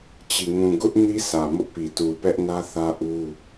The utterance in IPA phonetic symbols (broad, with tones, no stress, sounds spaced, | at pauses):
t͡ɕ i˨ ŋ ũ˨ ɡ ʊ˦ ʔ n i˦ s ä˨ m ʊ˦ ʔ p i˨ t u˨ p ɛ˦ ʔ n ä˦ θ ä˦ ʔ u˦